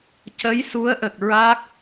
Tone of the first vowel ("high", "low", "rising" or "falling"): rising